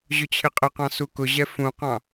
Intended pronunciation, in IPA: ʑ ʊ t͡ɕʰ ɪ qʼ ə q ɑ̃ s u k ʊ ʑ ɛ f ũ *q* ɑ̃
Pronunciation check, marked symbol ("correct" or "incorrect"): correct